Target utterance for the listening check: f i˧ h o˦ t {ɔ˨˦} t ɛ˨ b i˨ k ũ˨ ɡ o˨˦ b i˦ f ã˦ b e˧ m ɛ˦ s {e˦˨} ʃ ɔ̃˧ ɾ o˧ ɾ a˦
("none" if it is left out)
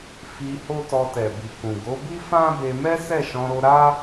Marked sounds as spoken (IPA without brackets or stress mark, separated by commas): ɔ˧, ɛ˦˨